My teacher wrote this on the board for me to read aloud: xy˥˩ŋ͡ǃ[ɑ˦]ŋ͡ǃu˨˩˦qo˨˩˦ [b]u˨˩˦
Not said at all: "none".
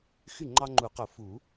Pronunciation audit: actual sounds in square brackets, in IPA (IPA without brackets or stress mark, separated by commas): ɑ˦, f